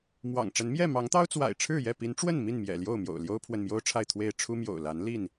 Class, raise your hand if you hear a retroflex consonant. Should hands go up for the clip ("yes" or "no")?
yes